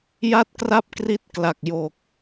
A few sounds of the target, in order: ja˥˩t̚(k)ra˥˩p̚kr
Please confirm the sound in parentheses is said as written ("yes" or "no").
yes